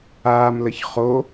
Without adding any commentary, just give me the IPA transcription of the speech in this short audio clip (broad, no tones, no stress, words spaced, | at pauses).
aːmləç χo